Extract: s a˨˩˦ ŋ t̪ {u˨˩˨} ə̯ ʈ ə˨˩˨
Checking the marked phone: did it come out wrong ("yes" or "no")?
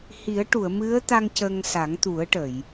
yes